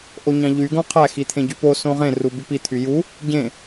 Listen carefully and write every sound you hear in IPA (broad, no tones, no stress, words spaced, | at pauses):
ʔoɲɑ̃ʎy ɡõqʰæ xit̪ʰẽɟypo sõʁẽ rubypi t̪ʰyju | ɟẽ